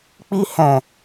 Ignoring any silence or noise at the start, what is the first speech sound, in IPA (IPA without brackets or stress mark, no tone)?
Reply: k͡p